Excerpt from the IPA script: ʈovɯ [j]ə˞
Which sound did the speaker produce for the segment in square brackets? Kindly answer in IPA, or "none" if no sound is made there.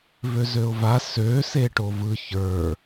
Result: ç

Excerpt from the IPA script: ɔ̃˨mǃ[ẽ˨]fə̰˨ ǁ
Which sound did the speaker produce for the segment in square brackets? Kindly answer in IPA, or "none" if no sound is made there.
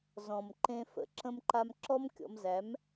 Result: ẽ˧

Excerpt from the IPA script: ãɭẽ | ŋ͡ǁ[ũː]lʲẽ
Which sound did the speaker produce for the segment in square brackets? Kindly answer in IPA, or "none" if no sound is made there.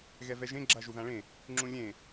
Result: ũ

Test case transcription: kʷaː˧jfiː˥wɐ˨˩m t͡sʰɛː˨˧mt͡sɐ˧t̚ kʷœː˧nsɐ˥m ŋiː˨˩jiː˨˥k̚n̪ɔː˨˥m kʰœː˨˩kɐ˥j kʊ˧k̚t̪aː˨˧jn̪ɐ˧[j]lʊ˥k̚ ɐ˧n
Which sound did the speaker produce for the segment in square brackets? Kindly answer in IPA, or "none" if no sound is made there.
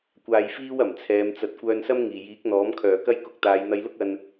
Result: j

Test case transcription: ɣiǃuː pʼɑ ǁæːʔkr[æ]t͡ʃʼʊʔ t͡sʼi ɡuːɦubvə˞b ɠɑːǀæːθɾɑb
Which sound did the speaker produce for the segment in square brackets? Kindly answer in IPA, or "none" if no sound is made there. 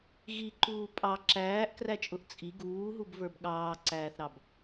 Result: æ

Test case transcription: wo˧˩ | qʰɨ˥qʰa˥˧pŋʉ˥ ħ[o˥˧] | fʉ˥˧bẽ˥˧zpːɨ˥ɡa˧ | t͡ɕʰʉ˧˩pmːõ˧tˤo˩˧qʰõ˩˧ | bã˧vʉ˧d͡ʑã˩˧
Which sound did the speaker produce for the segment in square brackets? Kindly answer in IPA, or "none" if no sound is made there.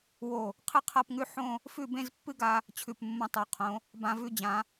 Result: õ˥˧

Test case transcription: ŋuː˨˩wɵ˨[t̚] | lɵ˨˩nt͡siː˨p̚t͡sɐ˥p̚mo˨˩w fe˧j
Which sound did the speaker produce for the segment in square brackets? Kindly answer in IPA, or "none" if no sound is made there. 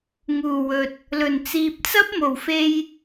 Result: t̚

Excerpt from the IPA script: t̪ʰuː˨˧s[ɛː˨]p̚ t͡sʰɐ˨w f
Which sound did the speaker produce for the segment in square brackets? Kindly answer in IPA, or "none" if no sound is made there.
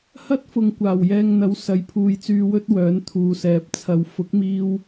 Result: ɛː˨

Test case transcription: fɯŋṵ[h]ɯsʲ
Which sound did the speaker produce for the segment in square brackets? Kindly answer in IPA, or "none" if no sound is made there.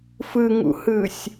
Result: h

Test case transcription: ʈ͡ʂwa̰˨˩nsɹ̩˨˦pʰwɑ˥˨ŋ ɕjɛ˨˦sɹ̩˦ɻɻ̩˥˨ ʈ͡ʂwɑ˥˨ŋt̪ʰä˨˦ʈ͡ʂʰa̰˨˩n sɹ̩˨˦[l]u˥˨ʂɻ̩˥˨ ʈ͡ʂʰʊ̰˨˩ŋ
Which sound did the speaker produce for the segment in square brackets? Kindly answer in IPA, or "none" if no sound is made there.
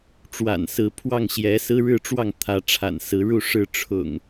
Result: ɻ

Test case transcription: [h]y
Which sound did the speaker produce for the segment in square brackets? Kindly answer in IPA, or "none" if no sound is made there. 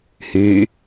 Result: h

